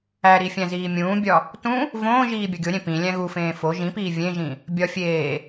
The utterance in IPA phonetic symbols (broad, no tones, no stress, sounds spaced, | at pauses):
æ ɾ i fʲ æ̃ z iː mʲ ũː bʲ ɒ | t ũ | v õː ʒ iː bʲ ɒ ɡʲ o ɾʲ ẽ p ĩ lʲ æ̃ ɣ u f ẽː f o ʒ ĩ p iː vʲ ẽ ʒ ĩ | bʲ ɒ fʲ eː